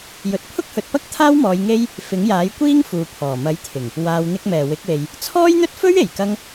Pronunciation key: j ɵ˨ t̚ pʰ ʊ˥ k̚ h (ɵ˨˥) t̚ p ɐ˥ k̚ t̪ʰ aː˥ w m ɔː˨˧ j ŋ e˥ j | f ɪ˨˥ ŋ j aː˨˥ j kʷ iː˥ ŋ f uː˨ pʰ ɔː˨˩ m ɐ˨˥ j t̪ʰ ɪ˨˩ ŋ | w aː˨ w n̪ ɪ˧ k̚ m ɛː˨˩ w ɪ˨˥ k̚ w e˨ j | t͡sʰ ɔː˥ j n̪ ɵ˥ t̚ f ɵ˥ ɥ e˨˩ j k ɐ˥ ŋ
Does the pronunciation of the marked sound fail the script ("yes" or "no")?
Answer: yes